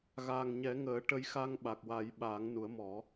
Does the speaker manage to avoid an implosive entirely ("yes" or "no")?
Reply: no